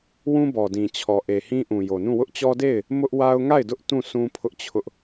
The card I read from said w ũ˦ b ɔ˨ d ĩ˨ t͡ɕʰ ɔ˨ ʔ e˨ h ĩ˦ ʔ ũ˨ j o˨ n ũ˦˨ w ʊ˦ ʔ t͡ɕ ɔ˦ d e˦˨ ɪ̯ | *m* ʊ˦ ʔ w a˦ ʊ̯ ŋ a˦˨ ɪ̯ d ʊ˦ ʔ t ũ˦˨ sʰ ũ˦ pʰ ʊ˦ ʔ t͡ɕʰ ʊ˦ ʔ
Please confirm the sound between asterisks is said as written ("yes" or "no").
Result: yes